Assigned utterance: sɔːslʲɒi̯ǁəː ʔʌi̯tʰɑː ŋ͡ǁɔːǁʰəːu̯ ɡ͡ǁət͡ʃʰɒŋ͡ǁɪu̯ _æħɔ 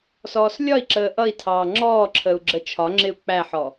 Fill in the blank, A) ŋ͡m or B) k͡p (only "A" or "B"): B